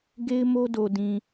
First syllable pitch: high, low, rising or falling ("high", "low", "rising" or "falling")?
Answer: high